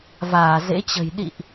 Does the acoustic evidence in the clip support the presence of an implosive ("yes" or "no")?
yes